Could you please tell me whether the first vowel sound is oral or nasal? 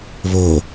oral